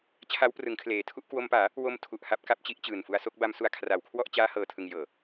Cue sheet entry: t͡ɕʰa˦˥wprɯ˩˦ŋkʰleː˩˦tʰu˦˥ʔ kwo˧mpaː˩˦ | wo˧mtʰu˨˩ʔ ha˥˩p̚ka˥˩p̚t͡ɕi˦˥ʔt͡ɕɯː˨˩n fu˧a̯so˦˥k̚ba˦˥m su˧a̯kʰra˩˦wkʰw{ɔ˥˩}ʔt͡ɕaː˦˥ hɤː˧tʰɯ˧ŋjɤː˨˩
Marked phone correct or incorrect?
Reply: correct